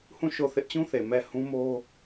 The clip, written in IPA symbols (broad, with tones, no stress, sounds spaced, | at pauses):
h ũ˦˨ ʃ o˦˨ θ ɪ˦ ʔ t͡ɕ ũ˦ θ e˨ m ɛ˦˨ h ũ˦ m o˦